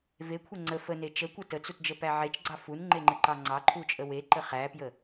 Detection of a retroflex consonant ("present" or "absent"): absent